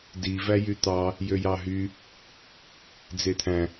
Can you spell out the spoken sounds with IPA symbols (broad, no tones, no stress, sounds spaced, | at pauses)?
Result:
d i v æ j y t̪ ɑ | j ø j ɑ ɦ y | d͡z e t̪ʰ æ̃